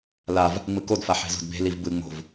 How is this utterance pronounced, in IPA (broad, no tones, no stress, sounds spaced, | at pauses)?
l a v | ŋ͡m ɯ k o d f a ħ e̤ z o̤ d b e̤ l i v b ɯ ŋ͡m o̤ v